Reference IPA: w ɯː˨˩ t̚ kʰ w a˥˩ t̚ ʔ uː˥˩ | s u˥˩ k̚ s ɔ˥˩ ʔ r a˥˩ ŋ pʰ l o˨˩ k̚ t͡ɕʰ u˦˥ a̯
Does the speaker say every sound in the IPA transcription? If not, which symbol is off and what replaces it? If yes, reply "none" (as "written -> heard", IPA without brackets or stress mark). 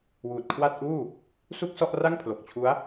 ɯː˨˩ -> uː˨˩